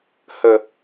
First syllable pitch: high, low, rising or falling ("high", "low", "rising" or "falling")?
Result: low